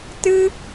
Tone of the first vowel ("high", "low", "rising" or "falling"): high